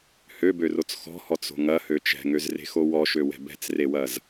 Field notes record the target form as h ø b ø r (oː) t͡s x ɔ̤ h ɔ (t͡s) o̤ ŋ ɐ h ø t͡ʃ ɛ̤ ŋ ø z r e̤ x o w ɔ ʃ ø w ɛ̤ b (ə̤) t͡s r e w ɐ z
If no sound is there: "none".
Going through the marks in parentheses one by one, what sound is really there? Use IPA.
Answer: o, t͡s, ɛ̤

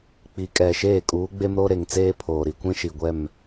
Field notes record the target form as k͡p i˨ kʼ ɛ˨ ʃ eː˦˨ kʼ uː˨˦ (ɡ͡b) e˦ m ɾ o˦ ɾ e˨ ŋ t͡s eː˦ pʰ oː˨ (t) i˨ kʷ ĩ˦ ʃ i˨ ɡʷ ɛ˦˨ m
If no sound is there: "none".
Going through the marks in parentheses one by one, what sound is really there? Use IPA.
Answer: ɡ͡b, ɾ

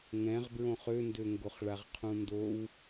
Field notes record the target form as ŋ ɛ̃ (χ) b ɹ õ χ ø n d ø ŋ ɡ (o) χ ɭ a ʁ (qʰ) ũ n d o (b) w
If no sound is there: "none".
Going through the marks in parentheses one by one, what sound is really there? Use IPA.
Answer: ʁ, o, qʰ, none

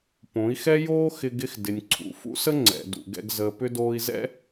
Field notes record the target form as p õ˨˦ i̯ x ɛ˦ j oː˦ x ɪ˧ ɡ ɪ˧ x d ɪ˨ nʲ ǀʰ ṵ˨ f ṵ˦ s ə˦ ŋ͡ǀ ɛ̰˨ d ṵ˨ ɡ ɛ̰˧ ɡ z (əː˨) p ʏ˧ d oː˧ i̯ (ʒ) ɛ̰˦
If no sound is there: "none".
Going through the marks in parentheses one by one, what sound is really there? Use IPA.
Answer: əː˨, z

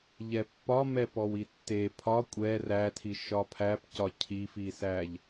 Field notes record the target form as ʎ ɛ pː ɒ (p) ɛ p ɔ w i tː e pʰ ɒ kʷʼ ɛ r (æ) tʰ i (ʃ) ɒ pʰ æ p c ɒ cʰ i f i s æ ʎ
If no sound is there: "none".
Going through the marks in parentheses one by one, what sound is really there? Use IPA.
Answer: m, æ, ʃ

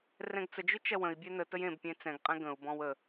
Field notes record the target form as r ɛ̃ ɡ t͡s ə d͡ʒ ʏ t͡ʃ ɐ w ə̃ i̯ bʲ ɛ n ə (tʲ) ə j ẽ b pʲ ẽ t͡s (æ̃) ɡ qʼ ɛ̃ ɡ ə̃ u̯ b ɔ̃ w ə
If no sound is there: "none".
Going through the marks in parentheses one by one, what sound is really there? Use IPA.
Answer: t, ɛ̃

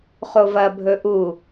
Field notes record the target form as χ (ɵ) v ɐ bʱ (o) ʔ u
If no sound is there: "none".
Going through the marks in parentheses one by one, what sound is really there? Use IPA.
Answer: o, ɵ

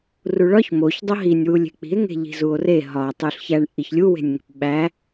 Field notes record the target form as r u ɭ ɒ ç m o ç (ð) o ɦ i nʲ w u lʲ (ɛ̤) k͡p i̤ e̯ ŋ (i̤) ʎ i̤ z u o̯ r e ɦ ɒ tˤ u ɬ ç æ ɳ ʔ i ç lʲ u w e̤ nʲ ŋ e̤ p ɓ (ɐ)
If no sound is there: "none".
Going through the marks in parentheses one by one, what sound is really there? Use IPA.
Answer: dˤ, e̤, e̤, æ

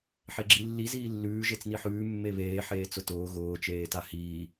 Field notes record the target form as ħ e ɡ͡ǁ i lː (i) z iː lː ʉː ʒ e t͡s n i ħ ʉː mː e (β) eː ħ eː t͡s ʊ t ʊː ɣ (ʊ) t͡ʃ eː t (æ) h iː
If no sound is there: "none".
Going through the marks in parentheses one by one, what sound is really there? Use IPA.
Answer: i, β, ʊː, a

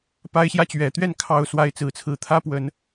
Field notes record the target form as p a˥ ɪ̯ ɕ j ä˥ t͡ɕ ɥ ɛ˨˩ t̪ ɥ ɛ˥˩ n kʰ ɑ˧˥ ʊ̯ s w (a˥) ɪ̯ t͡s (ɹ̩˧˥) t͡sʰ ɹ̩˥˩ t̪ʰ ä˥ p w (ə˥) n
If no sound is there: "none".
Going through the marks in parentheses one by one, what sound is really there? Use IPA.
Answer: a˥, ɹ̩˧˥, ə˨˩˦

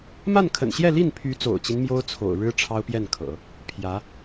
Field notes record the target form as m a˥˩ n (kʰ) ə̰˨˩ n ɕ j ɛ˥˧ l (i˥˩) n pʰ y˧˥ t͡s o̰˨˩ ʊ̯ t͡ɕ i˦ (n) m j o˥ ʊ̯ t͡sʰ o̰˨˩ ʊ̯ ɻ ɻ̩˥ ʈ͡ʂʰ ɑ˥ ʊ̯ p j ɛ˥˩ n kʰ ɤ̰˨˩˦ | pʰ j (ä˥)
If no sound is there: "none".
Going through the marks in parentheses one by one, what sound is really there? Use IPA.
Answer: kʰ, i˥˩, n, ä˧˥

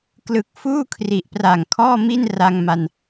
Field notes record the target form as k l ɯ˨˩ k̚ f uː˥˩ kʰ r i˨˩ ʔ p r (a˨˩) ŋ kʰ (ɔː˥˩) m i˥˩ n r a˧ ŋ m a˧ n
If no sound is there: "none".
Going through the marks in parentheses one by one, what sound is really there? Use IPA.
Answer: a˨˩, ɔː˥˩

